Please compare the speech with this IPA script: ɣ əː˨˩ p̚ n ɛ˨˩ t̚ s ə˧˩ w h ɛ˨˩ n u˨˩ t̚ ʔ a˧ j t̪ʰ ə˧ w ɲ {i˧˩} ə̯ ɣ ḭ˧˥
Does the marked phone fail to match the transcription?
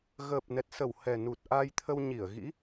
no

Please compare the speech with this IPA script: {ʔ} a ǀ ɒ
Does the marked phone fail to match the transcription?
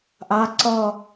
no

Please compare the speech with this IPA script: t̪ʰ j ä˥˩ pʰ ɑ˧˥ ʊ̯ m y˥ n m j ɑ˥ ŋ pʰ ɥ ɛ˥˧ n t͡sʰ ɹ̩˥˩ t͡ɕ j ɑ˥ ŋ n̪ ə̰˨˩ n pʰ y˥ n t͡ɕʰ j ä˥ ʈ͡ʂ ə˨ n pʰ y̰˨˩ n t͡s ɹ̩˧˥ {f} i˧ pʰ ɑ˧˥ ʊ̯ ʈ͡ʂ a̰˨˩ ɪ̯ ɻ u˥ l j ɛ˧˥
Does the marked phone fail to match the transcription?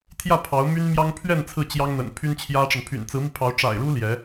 yes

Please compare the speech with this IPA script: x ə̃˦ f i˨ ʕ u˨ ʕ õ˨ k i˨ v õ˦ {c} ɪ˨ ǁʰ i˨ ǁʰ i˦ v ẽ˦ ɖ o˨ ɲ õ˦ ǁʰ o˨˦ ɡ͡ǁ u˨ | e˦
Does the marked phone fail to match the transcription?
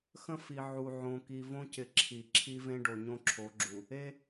no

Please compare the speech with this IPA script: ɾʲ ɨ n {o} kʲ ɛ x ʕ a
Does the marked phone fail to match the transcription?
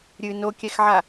no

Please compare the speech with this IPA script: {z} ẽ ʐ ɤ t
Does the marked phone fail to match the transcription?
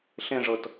yes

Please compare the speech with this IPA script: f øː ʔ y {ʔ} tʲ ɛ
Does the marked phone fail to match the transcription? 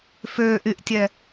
no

